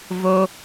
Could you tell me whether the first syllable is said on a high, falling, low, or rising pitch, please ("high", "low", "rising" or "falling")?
high